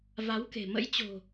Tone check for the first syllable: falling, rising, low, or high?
rising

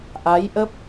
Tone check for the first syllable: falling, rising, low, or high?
rising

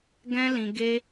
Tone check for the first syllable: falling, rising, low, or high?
high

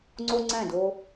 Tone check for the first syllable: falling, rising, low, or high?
high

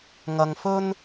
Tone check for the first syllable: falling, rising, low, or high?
low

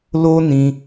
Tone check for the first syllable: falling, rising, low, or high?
high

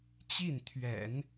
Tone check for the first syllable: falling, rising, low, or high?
falling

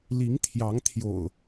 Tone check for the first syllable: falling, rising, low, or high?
rising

